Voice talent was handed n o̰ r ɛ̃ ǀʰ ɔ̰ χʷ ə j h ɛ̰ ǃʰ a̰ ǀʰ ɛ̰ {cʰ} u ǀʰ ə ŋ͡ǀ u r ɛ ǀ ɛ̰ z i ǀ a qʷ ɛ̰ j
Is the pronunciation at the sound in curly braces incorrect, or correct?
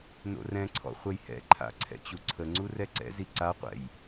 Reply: incorrect